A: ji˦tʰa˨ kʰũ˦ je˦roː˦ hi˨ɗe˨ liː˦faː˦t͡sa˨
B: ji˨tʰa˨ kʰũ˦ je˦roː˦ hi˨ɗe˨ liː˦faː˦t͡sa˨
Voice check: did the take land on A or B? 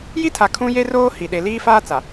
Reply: A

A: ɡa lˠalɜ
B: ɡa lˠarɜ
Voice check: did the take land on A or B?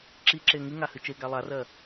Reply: B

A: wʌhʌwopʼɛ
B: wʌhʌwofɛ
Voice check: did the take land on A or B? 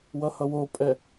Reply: A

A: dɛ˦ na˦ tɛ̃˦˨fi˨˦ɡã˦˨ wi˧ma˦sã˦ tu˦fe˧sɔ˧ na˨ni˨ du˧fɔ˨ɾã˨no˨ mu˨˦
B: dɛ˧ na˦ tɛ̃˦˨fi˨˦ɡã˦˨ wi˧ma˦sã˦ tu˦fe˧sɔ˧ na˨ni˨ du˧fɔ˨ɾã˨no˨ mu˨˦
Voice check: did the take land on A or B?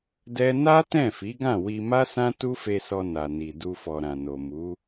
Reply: A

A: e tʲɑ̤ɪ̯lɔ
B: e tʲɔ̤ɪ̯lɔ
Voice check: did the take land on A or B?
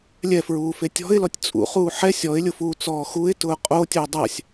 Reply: B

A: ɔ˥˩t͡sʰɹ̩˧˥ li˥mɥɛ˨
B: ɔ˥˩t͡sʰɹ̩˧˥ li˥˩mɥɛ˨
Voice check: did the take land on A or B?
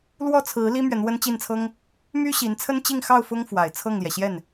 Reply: A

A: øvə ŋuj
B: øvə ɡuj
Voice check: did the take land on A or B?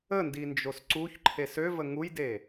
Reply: A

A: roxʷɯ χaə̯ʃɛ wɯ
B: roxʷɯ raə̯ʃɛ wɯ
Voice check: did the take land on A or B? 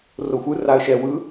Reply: B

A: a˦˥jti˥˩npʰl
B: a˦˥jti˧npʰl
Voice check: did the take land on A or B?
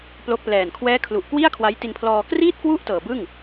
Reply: B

